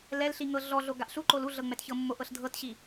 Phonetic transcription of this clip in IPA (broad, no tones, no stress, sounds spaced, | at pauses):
l ɛ l ɬ i ŋ ɤ ɮ ɔ ɮ o ɡ a ʔ ɬ u ǃ o l u ɮ ɤ ŋ͡m ɛ t ç ɤ mː o ʔ ɤ ɬ dʱ ɤ t ɕ i